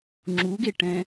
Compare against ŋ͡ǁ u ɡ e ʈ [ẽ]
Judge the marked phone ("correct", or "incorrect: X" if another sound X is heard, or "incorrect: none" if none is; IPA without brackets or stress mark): incorrect: ɛ̃